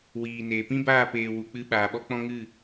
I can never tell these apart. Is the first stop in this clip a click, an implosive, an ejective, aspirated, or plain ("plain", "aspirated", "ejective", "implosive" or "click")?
plain